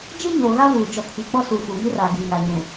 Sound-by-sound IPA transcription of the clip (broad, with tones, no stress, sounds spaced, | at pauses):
d͡ʒ ɪ˦ ɲ oː˨ ɣ a˦ v uː˨ d͡ʒ ɔ˨ kʰ i˨ k͡p ɔ˦ s u˨ f uː˨ ŋ i˦ r aː˨ ɡ i˨ ŋ a˨ ɲ ũ˨